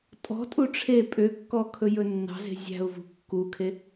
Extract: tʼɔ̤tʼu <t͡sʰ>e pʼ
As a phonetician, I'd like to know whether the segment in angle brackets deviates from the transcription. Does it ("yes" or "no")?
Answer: yes